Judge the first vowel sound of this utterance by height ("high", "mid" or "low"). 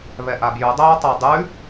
mid